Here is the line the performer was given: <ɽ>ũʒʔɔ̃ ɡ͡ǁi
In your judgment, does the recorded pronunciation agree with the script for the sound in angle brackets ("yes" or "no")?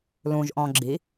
no